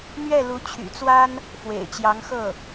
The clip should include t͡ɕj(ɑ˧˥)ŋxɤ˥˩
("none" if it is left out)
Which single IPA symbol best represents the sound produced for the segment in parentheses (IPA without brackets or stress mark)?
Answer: ɑ˧˥